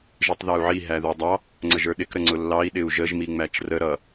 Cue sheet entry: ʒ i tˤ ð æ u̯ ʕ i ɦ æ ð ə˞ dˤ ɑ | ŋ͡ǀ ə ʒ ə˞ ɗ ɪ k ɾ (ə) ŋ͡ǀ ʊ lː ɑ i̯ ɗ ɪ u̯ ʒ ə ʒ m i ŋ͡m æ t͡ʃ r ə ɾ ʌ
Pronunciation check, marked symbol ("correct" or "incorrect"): correct